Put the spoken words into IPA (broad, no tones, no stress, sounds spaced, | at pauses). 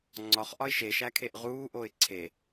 ŋ͡ǀ ɒ χ ʔ ɒ ɪ̯ ʃ e ʃ æ kʰ e ʔ ʁ uː ʔ o ɪ̯ ǀʰ e